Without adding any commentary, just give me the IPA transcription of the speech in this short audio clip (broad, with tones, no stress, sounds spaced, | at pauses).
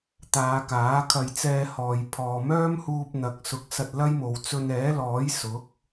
t̪ aː˨˧ k aː˨˥ kʰ ɐ˧ j t͡s ɛː˧ h ɔː˨ j pʰ ɔː˨ m œː˥ m h uː˧ p̚ n̪ ɐ˨ k̚ s ʊ˨˥ k̚ s ɐ˧ t̚ l ɐ˥ j m o˨ w t͡s ɵ˧ n ɛː˨˥ l ɔː˨˥ j s ʊ˨˥ k̚